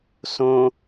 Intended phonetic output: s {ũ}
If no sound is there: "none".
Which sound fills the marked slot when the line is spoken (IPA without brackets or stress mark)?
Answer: õ